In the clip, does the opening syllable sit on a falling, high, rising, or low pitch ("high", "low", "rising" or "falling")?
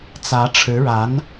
rising